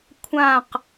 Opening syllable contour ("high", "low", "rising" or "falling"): falling